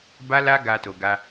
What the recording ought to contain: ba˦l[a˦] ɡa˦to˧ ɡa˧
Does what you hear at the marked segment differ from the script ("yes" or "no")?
no